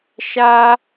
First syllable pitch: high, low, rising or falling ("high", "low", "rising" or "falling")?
high